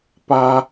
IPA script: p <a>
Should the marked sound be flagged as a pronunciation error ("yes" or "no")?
no